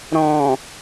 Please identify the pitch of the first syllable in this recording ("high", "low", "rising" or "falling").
low